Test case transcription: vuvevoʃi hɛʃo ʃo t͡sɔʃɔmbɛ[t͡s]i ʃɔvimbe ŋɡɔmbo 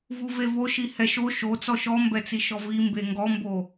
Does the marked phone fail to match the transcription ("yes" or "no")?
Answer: no